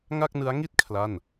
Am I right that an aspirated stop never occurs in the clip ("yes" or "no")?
no